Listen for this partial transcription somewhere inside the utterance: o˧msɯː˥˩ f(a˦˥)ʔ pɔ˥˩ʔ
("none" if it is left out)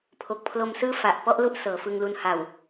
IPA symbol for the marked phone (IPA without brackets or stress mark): a˨˩